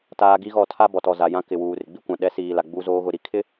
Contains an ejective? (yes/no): no